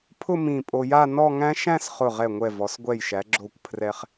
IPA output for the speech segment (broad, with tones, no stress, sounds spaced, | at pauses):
pʰ ʊ˥˧ m ĩ˧˩ pʼ o˧ j a˥˧ n ɔ˥˧ ŋ æ̃˥ ʃ æ̃˥˧ s χ ʊ˧˩ ʁ ɛ˧˩ ŋʷ ɛ˧˩ v ɔ˩˧ s ɡʷ ɛ˧˩ j ʃ æ˩˧ ɡ͡ǁ o˧˩ kʷ pʰ r ɛ˧ χ